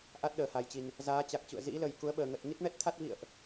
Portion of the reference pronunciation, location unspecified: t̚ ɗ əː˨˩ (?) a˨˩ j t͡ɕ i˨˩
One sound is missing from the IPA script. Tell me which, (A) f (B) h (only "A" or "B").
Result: B